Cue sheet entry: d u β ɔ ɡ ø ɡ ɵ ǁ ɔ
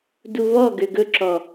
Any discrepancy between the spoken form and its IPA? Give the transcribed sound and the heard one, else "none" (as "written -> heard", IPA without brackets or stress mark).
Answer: none